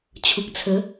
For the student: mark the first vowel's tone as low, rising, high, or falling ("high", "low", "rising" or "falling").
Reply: low